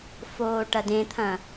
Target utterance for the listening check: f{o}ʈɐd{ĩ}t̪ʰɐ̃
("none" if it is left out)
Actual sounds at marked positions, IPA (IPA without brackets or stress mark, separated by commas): oː, ẽ